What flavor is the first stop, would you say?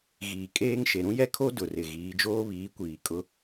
ejective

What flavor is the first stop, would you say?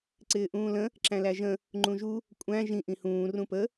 click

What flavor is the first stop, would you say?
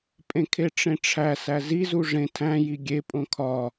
ejective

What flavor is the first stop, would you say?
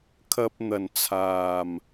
aspirated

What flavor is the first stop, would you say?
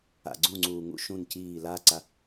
click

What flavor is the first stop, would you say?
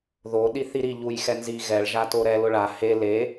implosive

